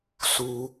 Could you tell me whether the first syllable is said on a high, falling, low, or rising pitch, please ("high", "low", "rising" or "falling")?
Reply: high